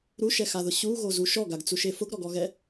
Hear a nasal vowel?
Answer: no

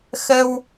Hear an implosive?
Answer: no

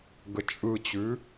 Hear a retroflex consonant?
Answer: no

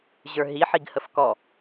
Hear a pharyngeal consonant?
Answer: yes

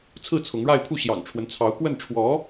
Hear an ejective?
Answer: no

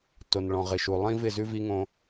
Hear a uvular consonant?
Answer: yes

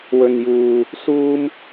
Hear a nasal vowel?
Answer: no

